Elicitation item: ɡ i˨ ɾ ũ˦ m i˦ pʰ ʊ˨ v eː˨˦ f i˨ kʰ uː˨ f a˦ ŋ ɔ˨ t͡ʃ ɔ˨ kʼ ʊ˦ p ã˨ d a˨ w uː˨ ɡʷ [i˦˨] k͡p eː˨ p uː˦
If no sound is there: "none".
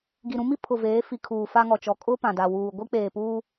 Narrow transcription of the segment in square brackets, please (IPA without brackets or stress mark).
i˦